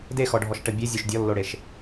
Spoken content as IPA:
d e x ɔ ɖʱ ɔ ʃ ʈ ə bʲ e zʲ o ʃ dʲ ɔ lː o ɽ e ʃ

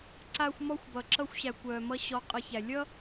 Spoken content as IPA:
ǀ a˦ xʷ m ɔ˦ xʷ b ʌ˨ ǁ ʌ˦ xʷ ɕ æ˨ kʷ œː˨ m ʌ˦ ɕ ɔ˦ qʼ ʌ˦ ç æ˨ lʲ ʌ˦

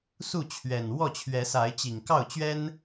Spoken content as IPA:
s u˥˨ t͡ɕʰ ɥ ɛ˨˩ n w ɔ˥˨ t͡ɕʰ ɥ ɛ˨˦ s a˨˦ ɪ̯ t͡ɕ i˨˩ ŋ k ɑ˥˨ ʊ̯ t͡ɕ ɥ ɛ˦ n

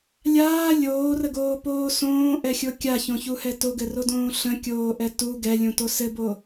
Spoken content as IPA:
lʲ aː lʲ oː r ə ɡ oː p oː s õː ʔ ɛ xʲ o kʲ a ç õ ç u h ɛ t o ɡ ɘ r o d õː ɬ ə̃ kʲ oː ʔ ɛ t u ɡ ɛ lʲ ũ t o s ɘ b o

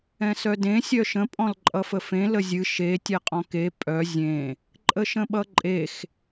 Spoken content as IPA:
ɛ̃ s œ d ẽ sʲ œ ʃ ə̃ pʼ ɔ̃ l ǃʼ ʌ f ə f ẽ l ə zʲ ɨ ʃ e tʲ ɛ qʼ ɔ̃ k e pʼ œ zʲ ẽ | ǃʼ ə ʃ ə̃ ɓ ʌ ǃʼ e x

